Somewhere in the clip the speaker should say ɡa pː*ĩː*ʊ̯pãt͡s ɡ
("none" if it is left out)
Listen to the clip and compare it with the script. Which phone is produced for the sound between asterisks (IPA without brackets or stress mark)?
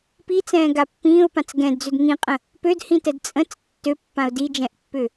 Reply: ĩː